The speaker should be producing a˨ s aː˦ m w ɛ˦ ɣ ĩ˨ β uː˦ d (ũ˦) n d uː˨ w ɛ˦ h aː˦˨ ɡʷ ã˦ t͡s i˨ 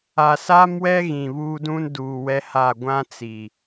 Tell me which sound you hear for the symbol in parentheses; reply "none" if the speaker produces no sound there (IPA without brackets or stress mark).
ũ˦